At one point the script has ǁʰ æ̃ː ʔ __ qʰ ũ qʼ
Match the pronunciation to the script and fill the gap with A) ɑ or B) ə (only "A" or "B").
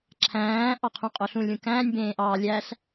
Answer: A